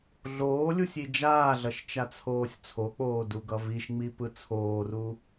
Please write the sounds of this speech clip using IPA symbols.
ɮ oː lʲ u sʲ i d͡ʒ aː ɮ ʌ ʃ t͡ʃ a t͡sʰ oː sʲ t͡sʰ o k͡p oː d u ɡ ʌ v i ʃ ŋ͡m i p ɯ t͡sʰ oː r u

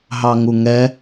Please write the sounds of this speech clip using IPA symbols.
ɦ ɑ ŋ u ŋ ɛ

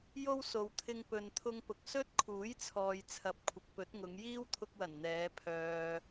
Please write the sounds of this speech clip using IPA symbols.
j o˥ w s o˨ w t̪ʰ ɪ˧ ŋ p ɵ˨ n t̪ʰ ʊ˧ ŋ p ʊ˨ k̚ s ɵ˥ t̚ kʰ uː˨˥ j t͡sʰ ɔː˨ j t͡sʰ ɐ˨˥ p̚ kʷʰ ɪ˨ k̚ p ɵ˨˥ t̚ ŋ ʊ˨˧ ŋ j iː˥ w t̪ʰ ʊ˧ k̚ w ɐ˨˩ n n̪ ɛː˨˧ pʰ œː˨

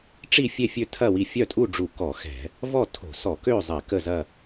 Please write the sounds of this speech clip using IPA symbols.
ʈ͡ʂ i˥˨ fʲ e˥˨ fʲ ø˥˨ tʰ ɐ˥˨ w i˥˨ fʲ œ˥˨ tʼ u˥˨ ɖ͡ʐ u˧˩˧ k ɔ˧˩˧ x ɛ̤˧˩˧ | v ɔ˥˨ tʰ o̤˧˩˧ s ɔ˧˩˧ k ø˥˨ zˤ ɛ˧˩˧ k ə˥˨ z ɐ˥˨

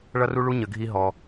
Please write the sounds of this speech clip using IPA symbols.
ɭ ʌ˦ r u˦ ɭ u˦ ɲ ə˧ ɡʱ i˦ ɦ ɔ˧

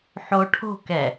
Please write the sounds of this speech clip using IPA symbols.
ħ o ʈʰ o̤ k ɛ

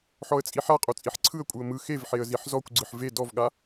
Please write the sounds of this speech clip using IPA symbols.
ħ ɔ ə̯ t͡sʼ i ħ a qʼ o t͡sʼ i ħ ǀʰ ɯ ə̯ kʷʼ ɯ ə̯ m ɯ x e v ħ e ə̯ z i ħ z ɔ kʷ ɡ͡ǀ ɯ ħ v e d ɔ v ɠ a

